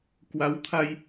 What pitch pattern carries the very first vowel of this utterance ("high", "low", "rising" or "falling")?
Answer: rising